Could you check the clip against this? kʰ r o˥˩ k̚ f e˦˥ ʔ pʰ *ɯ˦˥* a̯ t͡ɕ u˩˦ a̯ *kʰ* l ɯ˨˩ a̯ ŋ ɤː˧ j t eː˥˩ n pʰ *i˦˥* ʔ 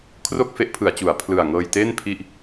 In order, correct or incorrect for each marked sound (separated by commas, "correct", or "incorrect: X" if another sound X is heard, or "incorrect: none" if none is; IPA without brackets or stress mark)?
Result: incorrect: ɯ˩˦, incorrect: pʰ, incorrect: i˥˩